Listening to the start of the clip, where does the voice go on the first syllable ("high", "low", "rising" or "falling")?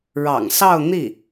low